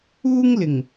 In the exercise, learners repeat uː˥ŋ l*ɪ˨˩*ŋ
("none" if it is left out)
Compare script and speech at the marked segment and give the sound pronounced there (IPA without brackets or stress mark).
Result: ɪ˨˩